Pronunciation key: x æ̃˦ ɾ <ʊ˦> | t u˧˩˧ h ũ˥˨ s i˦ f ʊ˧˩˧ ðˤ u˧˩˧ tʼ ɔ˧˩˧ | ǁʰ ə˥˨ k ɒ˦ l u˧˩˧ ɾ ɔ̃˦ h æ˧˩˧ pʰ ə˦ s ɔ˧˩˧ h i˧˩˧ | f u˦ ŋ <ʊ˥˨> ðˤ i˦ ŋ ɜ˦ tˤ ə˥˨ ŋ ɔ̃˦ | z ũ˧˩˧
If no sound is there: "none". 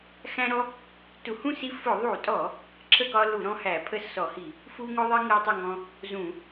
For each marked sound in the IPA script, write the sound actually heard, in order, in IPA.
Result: ɔ˦, ʊ˦

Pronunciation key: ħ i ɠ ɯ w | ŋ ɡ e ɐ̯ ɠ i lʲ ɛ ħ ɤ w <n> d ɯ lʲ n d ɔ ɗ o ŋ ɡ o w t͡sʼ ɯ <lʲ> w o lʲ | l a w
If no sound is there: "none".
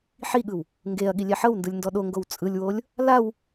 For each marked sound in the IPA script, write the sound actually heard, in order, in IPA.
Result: n, lʲ

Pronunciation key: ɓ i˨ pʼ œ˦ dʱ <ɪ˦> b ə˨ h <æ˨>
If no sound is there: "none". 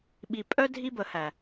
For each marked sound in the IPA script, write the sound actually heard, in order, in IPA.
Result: i˦, æ˨

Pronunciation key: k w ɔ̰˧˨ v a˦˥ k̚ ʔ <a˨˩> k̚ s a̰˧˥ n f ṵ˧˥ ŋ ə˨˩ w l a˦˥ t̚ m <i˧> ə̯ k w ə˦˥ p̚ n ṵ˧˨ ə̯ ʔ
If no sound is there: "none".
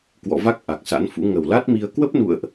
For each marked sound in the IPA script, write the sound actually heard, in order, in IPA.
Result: a˨˩, i˧

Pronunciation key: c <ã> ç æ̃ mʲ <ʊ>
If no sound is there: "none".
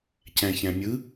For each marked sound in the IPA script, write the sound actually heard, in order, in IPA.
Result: æ̃, ɯ

